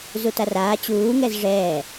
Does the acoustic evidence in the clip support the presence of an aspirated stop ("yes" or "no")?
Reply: no